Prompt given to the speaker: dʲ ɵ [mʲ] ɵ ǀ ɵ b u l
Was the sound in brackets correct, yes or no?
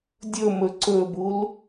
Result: no